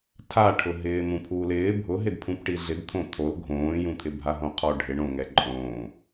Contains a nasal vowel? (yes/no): yes